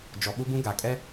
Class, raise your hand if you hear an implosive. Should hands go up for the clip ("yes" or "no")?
yes